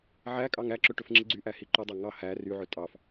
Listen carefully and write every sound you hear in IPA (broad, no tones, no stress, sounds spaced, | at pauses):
ʕ æ kʼ ɑ ŋ æ ǁ ɵ ʈ ɵ f ŋ͡ǁ i ɡ͡ǀ y ʔ æ h i ǃ ɵ dˤ æ ŋ ɑ h æ r y ʕ ɵ tʼ ɑ f